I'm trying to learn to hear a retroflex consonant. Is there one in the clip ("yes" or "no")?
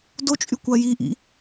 no